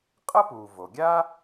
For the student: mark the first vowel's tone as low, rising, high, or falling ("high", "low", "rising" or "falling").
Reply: high